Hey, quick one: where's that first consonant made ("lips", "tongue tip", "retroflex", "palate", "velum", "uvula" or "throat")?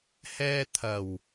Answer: throat